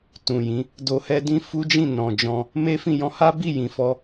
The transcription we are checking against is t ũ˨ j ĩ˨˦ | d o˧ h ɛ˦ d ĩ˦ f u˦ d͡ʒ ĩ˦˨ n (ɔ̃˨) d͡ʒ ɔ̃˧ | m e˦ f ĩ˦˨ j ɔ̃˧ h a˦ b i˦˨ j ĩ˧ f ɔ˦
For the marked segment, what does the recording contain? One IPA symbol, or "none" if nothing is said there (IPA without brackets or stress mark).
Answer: ɔ̃˨